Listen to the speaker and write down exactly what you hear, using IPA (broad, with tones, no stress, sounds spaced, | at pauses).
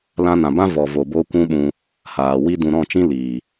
l ã˧ n ã˨ b ã˦ v ɔ˨ v o˨ b o˧ kʷ ũ˦ ɓ ũ˧ | h aː˨ w i˧ d ũ˨ ɾ ɔ̃˦˨ t͡ʃ ĩ˦ l iː˨